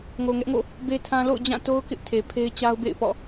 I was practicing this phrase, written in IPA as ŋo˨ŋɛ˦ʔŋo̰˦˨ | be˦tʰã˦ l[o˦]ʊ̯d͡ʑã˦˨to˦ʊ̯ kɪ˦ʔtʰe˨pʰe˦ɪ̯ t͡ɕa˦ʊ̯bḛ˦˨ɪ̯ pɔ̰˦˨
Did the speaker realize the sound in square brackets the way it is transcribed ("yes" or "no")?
no